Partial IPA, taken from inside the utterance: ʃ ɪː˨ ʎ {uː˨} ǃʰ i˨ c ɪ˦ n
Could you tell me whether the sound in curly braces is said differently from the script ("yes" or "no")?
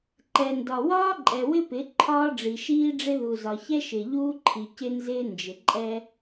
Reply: yes